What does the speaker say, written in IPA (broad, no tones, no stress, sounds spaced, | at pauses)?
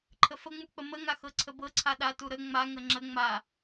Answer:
ǃʰ ə f ə ŋ͡m u k͡p ə m ə ŋ a x ɤ ǀʰ ə b ɤ ǀʰ a ɗ a t u ɾ ə ŋ͡m a ŋ ə ŋ͡ǁ ə ŋ͡m a